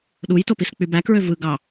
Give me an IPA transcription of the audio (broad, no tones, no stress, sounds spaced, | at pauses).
ɗ u j t o p i s k͡p y b æ k ɹ ø v ɯ ɡ ɑ